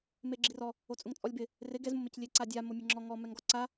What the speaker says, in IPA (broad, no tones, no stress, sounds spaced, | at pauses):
m e ɡ͡ǁ i r ɔ | o t͡sʼ ʊ ŋ t͡sʼ ɔ lʲ b ɪ | r ɪ ɡ ɛ z m ʊ m e c lʲ e ǀ a dʲ a m o mʲ e ŋ͡ǁ ɔ ŋ ɔ m ɛ ŋ ɡ ɔ ǀ a